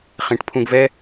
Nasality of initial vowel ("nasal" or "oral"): nasal